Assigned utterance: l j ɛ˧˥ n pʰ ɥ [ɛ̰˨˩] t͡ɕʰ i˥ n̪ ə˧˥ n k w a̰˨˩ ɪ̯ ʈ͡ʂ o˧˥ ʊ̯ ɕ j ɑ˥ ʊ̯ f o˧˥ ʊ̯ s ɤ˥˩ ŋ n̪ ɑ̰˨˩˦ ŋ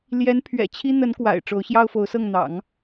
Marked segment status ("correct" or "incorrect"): correct